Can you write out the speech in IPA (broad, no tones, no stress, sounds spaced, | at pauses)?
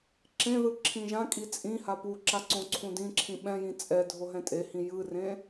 ǁ ẽ ð ɯ ǁʰ ĩ ʒ ã kʼ i t͡sʼ ĩ h a p u ǁ a ǀ õ ǀʰ ũ d ĩ ǁʰ ĩ ɓ ɛ̃ j ĩ t͡sʼ ɛ dʱ o ɦ ɛ̃ tʼ e h ĩ j ɯ r ẽ